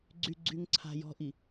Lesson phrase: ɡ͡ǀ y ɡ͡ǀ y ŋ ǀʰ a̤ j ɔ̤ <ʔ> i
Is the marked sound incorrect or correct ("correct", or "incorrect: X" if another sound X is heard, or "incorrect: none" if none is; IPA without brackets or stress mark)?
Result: correct